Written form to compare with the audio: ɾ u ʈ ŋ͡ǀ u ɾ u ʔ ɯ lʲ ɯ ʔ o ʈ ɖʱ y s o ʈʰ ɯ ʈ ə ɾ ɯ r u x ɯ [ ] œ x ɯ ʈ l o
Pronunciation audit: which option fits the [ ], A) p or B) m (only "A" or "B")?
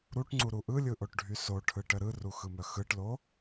B